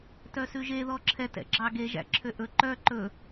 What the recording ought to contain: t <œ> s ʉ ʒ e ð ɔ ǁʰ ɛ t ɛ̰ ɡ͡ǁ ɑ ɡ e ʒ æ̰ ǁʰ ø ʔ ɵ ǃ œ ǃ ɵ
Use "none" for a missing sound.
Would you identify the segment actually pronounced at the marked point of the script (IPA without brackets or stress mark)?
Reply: œ